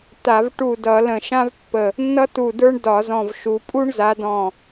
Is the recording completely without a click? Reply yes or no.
yes